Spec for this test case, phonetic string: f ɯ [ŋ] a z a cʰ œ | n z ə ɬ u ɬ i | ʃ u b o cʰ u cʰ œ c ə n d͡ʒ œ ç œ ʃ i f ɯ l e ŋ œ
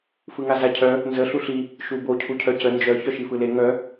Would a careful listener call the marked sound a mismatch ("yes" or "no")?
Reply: no